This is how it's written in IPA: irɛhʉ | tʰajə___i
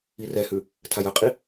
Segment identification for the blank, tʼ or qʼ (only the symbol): qʼ